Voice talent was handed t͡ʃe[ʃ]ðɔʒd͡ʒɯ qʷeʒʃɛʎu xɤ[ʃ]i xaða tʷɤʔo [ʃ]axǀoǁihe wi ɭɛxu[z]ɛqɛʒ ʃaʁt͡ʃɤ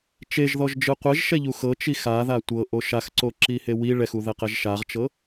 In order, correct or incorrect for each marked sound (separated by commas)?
incorrect, incorrect, correct, incorrect